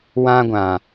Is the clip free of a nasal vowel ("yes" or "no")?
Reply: no